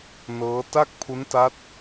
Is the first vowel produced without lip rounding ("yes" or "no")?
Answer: yes